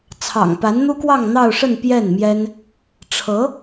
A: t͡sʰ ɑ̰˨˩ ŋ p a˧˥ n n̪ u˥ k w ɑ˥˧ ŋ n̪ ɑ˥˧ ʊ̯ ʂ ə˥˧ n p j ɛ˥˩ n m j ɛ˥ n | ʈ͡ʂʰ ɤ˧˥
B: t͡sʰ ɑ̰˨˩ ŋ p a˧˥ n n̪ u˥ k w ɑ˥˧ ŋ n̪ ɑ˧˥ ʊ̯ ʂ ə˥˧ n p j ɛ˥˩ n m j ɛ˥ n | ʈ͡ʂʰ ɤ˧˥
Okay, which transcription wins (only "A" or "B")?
A